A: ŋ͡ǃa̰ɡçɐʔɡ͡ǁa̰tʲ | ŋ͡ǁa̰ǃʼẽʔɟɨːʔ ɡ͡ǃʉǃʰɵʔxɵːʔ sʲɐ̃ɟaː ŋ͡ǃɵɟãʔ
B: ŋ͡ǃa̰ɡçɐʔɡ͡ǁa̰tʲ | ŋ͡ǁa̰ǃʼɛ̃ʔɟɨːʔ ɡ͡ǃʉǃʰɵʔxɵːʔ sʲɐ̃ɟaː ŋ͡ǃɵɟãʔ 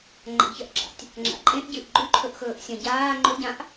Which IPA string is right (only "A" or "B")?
A